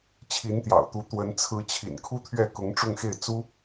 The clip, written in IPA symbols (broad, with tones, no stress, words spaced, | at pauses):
t͡ɕʰi˧˥nt̪jɑ̰˨˩ʊ̯t̪u˧˥ t̪wə˧˥n t͡sʰɹ̩˧˥t͡ɕʰḭ˨˩nkʰu˥ t̪ʰɥɛ˥˩kʊ˧˥ŋ ʈ͡ʂʊ˥˧ŋxe˥˩ɪ̯ t͡su˥